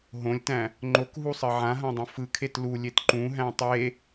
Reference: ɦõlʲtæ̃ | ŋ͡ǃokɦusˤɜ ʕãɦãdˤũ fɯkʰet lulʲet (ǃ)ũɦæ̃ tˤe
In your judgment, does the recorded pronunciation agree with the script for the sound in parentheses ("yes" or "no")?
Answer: yes